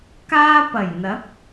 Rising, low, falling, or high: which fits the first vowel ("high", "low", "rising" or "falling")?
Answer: high